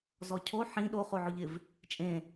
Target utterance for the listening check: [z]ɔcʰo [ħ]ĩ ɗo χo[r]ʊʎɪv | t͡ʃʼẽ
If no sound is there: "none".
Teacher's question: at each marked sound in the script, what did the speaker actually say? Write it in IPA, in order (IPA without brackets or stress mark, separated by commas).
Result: z, ħ, ʕ